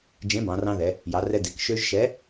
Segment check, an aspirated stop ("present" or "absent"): absent